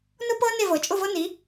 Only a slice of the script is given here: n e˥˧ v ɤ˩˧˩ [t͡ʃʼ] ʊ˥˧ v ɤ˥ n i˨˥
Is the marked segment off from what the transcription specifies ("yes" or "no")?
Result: no